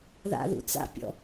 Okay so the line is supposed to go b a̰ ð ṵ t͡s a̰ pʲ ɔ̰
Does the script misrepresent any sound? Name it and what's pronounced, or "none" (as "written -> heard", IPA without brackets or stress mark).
b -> ð